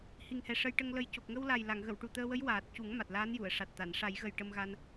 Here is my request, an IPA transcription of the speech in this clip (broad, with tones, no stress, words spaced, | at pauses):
hi˨˩ŋhɛ˨˩ ʂə˧jʈə˧ŋlə˧j co˨˩k̚ŋə˧wla˨˩jla˨˩˨ŋ ɣə˨˩˨wʈu˨˩t̪əː˧wə˧˥j waː˨˩t̚cu˨˩˦ŋ ma˨˩t̚laː˧˥n ju˨˩˨ə̯ʂa˨˩t̚t̪a˨˩˨n ʂa˨˩˦jɣə˨˩j ʈə˧mɣa˧n